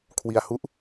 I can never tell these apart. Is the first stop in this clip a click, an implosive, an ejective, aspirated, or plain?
aspirated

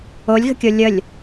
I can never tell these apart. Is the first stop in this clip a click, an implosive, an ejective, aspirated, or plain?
plain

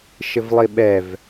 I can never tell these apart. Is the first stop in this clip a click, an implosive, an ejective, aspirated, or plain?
implosive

